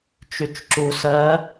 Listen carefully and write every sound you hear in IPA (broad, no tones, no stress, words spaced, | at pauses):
t͡ʃyt͡ʃǁu sɜ